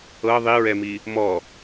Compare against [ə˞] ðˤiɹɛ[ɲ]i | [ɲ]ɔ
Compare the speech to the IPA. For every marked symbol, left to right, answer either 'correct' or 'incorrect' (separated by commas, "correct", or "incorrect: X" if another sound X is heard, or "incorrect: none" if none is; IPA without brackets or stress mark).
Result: incorrect: ɤ, incorrect: m, incorrect: m